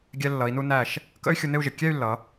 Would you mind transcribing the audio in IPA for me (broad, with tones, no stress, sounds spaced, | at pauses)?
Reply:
ɡʲ ɛ˧ lː ʌ˩˧ i̯ n u˧ n æ˧˩ ʃ | k ə̰˥ y̯ xʲ u˧ n ɪ˥˧ u̯ ʒ ɪ˩˧ kʲ ɛ˥˧ y̯ lː ʌ˩˧